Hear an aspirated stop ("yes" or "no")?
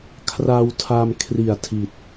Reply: yes